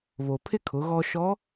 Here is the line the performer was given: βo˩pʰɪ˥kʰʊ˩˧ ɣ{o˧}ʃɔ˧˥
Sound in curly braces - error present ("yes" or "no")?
yes